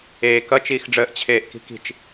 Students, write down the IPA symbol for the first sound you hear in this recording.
eː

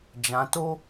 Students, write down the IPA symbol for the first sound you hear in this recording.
d͡ʒ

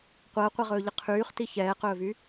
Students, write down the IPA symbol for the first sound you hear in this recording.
qʷ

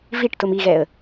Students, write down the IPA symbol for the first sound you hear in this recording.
v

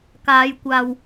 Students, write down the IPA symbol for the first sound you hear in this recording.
k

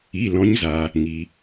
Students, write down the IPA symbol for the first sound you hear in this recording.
i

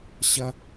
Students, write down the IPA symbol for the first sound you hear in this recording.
ɕ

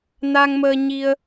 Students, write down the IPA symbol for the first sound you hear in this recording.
n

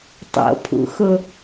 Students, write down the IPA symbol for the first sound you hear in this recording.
tˤ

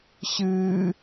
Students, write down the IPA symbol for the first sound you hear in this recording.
ɕ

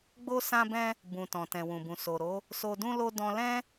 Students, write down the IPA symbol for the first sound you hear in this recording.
ɡ͡b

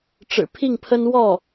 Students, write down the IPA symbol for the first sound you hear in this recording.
ʈ͡ʂ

